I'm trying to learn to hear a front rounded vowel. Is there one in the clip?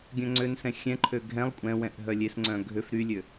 yes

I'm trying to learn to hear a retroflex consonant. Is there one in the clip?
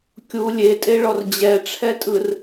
yes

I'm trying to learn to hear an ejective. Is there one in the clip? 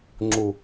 no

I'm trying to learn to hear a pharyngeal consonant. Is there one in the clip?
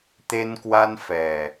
no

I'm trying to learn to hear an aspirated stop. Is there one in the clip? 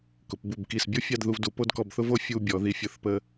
no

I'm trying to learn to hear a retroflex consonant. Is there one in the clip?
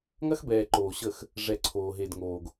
yes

